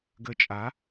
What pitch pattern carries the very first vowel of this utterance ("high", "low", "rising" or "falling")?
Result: low